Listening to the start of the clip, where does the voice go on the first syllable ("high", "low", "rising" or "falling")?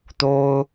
high